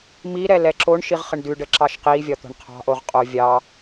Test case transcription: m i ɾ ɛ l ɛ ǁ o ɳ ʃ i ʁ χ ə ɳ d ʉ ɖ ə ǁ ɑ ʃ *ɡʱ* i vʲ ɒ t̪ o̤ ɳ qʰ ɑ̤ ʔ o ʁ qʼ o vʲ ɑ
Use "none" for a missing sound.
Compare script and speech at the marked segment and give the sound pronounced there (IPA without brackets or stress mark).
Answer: q